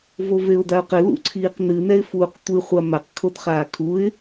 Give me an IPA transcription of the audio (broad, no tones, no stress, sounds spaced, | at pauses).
v o v e ʊ̯ d a ʊ̯ q ɘ l ṵ ǀʰ iː q n ɨ n ɛ ɪ̯ f uː q tʷ ɨ χʷ a m a q kʰ o d χ aː kʰ u ɪ̯